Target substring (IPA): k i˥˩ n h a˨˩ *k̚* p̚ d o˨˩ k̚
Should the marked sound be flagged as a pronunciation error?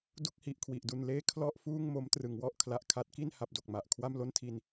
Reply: yes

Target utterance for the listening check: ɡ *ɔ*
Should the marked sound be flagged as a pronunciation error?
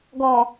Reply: no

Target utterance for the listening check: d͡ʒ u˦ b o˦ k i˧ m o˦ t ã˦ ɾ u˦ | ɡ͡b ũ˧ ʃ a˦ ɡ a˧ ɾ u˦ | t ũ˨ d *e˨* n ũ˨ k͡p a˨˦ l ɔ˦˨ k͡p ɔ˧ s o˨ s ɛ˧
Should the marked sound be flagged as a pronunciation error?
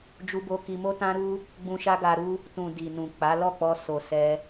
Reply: yes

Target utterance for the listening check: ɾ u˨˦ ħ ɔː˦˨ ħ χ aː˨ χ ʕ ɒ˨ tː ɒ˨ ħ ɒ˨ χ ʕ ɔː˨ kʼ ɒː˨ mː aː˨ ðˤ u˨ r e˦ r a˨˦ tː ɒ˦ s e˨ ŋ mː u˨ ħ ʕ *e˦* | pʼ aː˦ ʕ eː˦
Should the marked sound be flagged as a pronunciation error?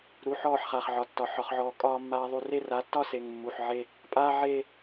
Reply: no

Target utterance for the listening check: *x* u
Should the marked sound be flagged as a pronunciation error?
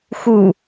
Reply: no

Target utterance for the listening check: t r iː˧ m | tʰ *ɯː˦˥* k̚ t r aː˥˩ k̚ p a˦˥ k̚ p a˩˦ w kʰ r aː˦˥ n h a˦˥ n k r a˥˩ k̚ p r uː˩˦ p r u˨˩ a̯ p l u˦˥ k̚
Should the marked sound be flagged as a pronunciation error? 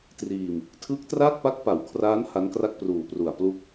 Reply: no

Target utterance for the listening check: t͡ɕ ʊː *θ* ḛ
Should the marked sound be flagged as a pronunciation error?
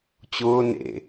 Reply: yes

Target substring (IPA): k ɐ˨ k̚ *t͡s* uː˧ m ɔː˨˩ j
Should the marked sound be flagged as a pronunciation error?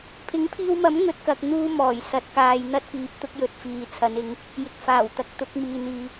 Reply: yes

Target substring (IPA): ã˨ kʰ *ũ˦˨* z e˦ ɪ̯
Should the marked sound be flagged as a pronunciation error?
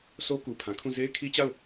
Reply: no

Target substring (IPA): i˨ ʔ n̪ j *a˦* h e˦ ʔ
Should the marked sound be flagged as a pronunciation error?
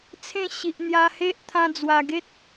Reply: yes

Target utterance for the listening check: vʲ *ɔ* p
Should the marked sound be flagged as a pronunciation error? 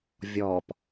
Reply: no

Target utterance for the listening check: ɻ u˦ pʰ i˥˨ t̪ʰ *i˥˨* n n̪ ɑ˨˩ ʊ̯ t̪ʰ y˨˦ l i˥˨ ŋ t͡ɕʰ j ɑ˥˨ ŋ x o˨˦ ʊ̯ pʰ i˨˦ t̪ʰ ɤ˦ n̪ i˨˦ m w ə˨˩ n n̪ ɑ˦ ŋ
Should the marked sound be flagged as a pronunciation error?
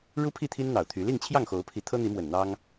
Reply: yes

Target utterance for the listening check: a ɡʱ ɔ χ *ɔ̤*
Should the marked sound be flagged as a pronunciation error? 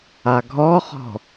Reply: no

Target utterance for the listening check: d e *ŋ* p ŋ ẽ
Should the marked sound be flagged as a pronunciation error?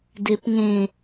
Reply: yes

